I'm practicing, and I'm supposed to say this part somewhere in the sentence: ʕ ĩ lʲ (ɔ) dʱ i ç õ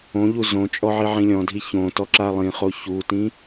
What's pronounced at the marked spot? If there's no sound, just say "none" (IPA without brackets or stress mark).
ɔ̃